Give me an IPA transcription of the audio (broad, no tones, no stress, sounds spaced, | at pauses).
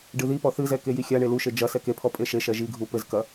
ɖ ɨ ð i p ɔ θ ɨ z ɛ k e j i xʲ a ɳ e l u ʃ e d͡ʒ ɐ s ɛ k e pʰ ɔ pʼ e ʃ e ʃ ɛ ʒ i ɡʱ u p ɘ z k ɐ